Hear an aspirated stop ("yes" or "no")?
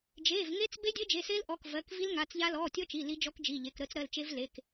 no